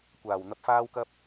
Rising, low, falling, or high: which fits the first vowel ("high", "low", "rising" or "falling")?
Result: low